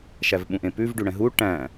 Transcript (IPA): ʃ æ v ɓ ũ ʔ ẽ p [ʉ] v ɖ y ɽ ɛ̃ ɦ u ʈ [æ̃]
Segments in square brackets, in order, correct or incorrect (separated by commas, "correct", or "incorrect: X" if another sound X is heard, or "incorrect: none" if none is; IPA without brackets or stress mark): correct, correct